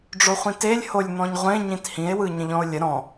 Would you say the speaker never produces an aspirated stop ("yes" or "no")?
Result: yes